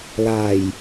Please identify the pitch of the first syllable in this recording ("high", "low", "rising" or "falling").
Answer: low